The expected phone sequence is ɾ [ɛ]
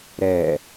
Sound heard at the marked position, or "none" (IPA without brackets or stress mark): ɛ